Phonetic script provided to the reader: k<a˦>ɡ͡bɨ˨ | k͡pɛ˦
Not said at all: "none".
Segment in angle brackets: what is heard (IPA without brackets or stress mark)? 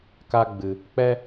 a˦